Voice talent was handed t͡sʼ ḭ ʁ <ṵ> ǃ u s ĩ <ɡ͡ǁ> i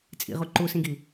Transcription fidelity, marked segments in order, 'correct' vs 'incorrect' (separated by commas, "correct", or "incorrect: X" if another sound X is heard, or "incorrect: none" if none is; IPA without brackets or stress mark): incorrect: u, incorrect: ɡ